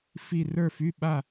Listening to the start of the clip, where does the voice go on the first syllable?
falling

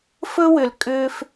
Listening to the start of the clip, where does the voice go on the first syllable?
high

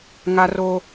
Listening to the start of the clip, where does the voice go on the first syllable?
high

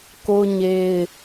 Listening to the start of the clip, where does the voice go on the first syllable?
high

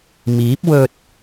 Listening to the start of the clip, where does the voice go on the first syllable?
rising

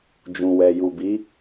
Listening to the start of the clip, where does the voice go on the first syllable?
low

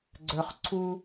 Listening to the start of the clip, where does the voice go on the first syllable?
high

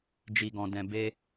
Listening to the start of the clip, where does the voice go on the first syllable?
low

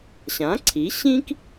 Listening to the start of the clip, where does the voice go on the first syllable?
rising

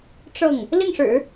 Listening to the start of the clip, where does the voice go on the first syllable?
falling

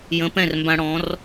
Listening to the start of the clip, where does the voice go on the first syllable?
rising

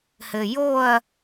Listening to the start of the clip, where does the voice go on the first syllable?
low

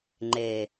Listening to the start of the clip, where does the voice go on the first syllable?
low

